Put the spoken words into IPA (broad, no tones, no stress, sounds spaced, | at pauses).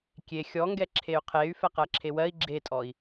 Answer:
kʲ e xʲ ɔ ŋ ɡ ɛ ǁʰ e y̯ qʰ e y̯ f ɛ q ɜ ǁʰ e w ɜ i̯ ɡ͡ǁ e tʼ ɔ i̯